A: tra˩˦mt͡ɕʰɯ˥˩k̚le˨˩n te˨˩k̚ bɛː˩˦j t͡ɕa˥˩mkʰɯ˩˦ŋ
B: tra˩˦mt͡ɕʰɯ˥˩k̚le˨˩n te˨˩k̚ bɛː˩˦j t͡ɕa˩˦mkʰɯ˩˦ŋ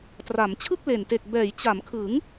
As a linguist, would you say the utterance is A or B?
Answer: B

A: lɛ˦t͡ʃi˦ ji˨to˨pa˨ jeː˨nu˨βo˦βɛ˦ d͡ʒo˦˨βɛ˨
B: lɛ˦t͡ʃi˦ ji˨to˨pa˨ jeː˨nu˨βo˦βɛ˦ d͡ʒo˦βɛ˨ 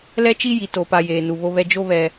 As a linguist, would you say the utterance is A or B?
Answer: B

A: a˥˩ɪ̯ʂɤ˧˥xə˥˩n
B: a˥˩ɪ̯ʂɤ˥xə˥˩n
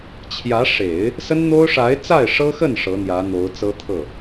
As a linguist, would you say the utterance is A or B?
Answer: B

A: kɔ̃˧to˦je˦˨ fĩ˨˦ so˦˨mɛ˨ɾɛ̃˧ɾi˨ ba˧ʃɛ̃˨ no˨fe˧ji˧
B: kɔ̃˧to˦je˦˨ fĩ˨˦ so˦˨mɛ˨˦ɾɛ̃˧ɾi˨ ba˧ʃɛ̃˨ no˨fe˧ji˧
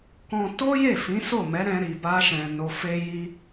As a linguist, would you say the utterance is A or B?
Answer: B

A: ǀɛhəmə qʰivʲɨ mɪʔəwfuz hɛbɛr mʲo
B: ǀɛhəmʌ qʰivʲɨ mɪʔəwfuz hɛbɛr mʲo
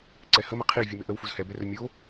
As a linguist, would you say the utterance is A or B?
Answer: A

